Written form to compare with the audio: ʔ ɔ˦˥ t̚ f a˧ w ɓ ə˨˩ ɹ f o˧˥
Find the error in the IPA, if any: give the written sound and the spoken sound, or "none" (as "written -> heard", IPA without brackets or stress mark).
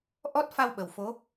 ɹ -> w